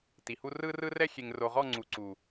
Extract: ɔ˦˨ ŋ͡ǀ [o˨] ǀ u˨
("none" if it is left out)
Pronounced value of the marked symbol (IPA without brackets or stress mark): u˨